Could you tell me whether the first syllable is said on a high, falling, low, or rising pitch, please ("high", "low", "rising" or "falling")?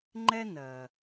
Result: high